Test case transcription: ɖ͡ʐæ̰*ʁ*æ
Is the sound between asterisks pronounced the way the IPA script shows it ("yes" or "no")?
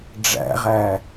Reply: yes